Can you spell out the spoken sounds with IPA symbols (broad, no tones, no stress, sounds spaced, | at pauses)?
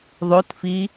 ðˤ o t f i